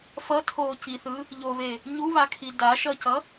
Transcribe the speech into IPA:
f ʌ tʰ oː c i θ ɯ | ʎ o β e | ɲ u β a kʰ i d a ʃ ʌ c ʌ

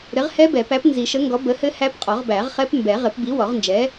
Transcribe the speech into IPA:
ɾ ɘ˨˥ ʁ h ɛ˦˥ b ɛ˨˩˦ p æ˨˥ p n z i˨˩˦ ʃ ə˨˥ ŋ ɡ ɔ˨˥ b ə˨˥ h ɘ˦˥ h æ˦˥ p qʼ ɔ˨˩˦ ʁ b æ˨˩˦ ʁ χ ɛ˦˥ p m b ɛ˨˩˦ ʁ ɘ˨˩˦ p b i˨˥ w ɔ˨˩˦ ʁ n d͡ʒ ɛ˨˥

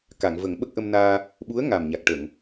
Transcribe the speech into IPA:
k a˨˩˨ ŋ v ə˨˩˦ ŋ ɓ ə˦˥ k̚ ʔ ə˧ m n aː˧ | ɓ u˧˥ ə̯ ŋ a˨˩ m ɲ a˨˩ k̚ ʈ ə˨˩˨ ŋ

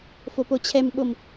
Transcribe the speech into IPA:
f o p o t͡ɕʰ ɛ m ɓ o m

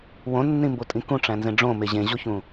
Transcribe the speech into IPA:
w õ nː ĩ m b o tʼ ĩ k ũ ʈ͡ʂ æ̃ n z ẽ ɖ͡ʐ õ m e ʑ ẽ ʑ o ç ũ

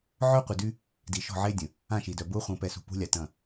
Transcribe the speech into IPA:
ʕ œ˦ qʷ ɪ˨ d y˦ | d i˨ ʃ ɔ̤˦˨ ʕ e˦ dʲ ə̃˨ | ã˦˨ ʃ i˨ d œ˨ b ʊː˦ χʷ ə̃ː˨ p ɛ˨ s ṳ˨ p ṳ˦ lʲ a˨ t ɐ̃˦˨

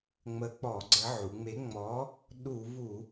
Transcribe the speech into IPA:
ŋ͡m ə˨˥ k͡p ɔ˧˩˧ ɡ͡ǀ ə˨˥ ʕ u˩˧ ŋ͡m e˨˥ ŋ͡m ɔ˨˥ | ɗ u˧˩˧ v u˧˩˧

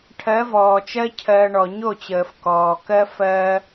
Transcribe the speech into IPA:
ʈʰ ɜ˨˦ v ɔː˨ t͡ʃ ɜ˦ cʰ ɜ˧ ɳ ɔ˨ ɲ o˦˨ t͡ɕ əː˨ f k ɔː˨ k ɜ˦ f ɜː˧

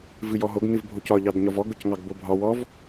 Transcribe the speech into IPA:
v ɨ j ɔ ɦ o ɡ n ɨ v bʱ o c ɒ ʎ ɑ d ɲ ɒ v ɔ ɡ ʊ c ŋ ɑ ɡ b o bʱ ɒ w ɔ v

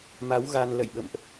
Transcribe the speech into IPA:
m a˨˦ w ɣ a˧ n l ə̰˧˨ j ɓ ə̰˧˨ m ʔ

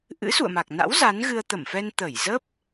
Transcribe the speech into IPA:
ʔ ɨ̰˧˥ s ṵ˧˨ ə̯ m a˨˩ k̚ n a̰˧˥ w z a˨˦ n ɣ ɨ˧ ə̯ t̪ ə˧˩ m f ɛ˧ n t̪ ə˧˩ j z ə˦˥ p̚

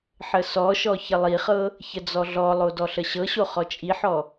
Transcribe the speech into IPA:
ħ ə s ɔ ʃ ɔ ç ə lˠ i χ ɤ | ç ə d͡z ɔ ɮ ɔ lˠ o d ɔ ɬ ə ɕ ɤ ɕ o χ ɔ t͡ʃʼ i ħ ɔ

